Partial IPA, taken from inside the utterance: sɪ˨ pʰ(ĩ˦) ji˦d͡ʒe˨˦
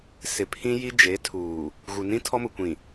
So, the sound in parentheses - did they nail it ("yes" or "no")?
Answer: yes